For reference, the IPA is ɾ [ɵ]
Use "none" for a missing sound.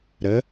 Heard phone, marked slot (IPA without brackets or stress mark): ə